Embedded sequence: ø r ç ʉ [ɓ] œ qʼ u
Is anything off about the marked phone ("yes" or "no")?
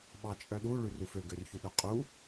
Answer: yes